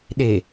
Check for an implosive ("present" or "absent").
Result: present